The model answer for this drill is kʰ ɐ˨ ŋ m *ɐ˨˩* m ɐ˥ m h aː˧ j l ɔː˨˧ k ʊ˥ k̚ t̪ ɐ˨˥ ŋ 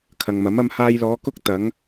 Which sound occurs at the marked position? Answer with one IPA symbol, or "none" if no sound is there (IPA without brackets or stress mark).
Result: ɐ˨˥